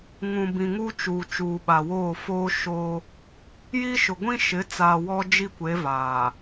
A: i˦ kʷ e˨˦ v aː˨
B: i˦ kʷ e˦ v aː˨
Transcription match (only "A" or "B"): A